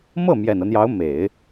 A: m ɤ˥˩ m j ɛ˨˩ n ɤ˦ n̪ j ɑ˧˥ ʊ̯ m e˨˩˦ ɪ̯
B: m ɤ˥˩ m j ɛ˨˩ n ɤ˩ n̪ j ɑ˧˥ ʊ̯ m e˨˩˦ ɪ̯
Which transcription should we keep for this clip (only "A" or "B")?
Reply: A